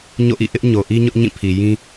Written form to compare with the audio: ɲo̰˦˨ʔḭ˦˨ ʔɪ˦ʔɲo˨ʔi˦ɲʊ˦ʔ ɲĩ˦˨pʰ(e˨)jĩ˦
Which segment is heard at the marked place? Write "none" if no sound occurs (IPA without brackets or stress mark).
i˨